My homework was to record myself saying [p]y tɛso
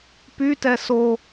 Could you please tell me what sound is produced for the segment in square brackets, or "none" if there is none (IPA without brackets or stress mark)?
p